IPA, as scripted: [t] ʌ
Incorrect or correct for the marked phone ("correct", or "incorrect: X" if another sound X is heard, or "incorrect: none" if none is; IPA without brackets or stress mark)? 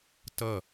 correct